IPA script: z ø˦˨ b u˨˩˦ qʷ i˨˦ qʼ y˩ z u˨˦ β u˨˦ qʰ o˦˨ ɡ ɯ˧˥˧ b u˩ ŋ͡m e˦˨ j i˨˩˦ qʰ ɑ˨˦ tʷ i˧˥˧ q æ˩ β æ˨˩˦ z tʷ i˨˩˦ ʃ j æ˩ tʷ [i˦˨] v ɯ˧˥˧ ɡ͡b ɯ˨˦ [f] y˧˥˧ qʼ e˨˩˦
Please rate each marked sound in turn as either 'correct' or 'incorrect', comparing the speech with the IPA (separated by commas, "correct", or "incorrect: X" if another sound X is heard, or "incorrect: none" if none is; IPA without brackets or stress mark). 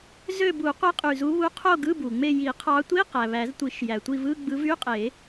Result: correct, incorrect: v